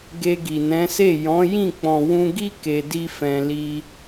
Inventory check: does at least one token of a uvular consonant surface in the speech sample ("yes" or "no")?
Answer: no